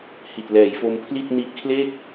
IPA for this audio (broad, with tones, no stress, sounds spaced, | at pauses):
h i˨˩ t̚ l ɛː˩˦ j f o˧ m pʰ l i˥˩ t̚ n i˦˥ ʔ kʰ l e˥˩ k̚